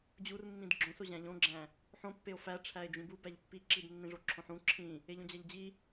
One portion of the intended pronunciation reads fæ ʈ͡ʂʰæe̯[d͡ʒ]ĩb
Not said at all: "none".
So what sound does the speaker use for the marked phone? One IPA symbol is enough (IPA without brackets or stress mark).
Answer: d͡ʒ